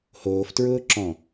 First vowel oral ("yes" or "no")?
yes